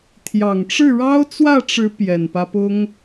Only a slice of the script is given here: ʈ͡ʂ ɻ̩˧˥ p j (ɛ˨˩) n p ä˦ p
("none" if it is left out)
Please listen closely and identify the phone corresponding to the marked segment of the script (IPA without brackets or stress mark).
ɛ˨˩